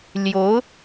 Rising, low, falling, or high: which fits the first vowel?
rising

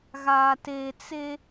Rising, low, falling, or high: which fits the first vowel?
low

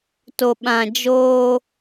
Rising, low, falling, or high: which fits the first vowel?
low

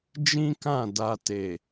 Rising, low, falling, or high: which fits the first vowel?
high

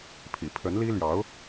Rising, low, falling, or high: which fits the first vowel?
low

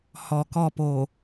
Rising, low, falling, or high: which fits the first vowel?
low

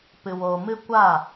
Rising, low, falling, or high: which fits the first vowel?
low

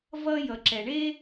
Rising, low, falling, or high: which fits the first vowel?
high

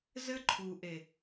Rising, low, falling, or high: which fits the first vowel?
high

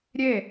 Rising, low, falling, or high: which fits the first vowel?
falling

